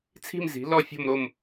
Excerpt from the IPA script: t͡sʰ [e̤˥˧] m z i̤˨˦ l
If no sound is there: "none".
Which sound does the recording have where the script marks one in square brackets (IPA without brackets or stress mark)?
i̤˥˧